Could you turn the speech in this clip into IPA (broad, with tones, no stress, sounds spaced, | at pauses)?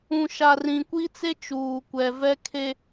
ũ˨ ʃ a˨ r ĩ˨ kʷ i˦ t͡s e˦ t͡ʃ uː˨ kʷ ɛ˨ v ɛ˦ kʰ e˦